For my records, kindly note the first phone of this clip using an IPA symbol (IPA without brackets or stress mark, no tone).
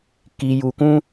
k